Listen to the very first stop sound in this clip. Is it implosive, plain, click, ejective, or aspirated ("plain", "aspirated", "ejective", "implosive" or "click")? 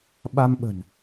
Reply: implosive